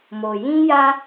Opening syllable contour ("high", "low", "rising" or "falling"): low